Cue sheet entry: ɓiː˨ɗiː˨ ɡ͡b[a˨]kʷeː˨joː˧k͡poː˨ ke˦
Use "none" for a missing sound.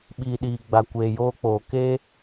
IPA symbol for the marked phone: a˨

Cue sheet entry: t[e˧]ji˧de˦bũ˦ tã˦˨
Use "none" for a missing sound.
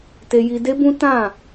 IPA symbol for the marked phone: e˧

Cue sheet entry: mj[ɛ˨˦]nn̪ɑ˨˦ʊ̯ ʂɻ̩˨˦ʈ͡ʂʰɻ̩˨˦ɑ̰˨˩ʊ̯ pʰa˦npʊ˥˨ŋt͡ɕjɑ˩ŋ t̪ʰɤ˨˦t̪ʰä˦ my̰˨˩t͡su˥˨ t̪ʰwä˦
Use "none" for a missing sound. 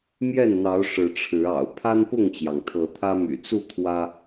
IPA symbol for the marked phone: ɛ˥˨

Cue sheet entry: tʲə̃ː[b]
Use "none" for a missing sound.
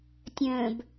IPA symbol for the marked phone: b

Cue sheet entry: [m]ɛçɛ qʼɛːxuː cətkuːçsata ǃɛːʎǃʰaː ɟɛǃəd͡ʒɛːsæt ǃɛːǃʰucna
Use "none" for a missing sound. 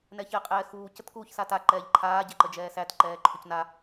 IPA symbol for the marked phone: n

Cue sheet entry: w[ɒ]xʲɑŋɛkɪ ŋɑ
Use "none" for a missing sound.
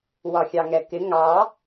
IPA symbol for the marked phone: ɒ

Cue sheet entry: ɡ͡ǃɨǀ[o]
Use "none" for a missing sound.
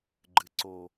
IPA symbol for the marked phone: o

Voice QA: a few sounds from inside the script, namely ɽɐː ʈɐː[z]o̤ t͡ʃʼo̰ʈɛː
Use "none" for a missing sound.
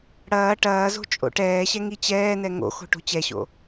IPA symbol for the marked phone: z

